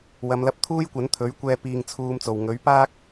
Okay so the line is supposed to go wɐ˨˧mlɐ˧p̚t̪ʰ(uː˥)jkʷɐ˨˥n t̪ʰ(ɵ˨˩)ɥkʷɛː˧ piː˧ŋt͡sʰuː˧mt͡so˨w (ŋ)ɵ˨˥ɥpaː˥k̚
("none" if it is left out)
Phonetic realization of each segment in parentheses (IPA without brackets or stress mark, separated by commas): uː˥, ɵ˨˥, ŋ